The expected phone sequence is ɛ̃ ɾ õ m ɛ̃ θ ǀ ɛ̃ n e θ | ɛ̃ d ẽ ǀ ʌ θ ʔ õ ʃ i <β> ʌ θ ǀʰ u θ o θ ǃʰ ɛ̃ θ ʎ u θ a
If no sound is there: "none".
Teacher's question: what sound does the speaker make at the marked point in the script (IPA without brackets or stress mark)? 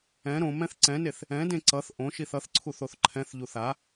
θ